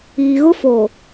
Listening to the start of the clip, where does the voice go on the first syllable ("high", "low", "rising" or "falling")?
low